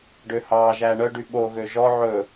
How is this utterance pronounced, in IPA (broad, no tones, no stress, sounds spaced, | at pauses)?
ɖ ø h ɑː ʒ æː ɳ œ ɖ y ɓ o ɣ ø ʒ ɔ ʕ ɵ